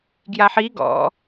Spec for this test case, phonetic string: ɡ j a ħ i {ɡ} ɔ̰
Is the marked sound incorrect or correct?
correct